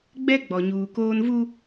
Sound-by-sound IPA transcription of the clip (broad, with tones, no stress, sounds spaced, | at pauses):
ɡ͡b ɛ˦ ɡ͡b ɔ˨ ɲ uː˨ k oː˦ n v u˦